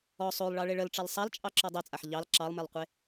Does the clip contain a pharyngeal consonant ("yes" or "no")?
yes